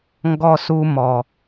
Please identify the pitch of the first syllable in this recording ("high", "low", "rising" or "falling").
high